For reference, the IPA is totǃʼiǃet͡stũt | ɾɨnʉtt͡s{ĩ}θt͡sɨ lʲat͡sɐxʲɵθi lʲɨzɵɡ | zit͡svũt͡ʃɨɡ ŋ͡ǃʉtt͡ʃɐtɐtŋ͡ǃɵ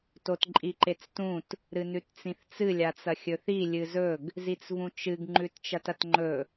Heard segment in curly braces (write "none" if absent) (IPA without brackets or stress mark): ĩ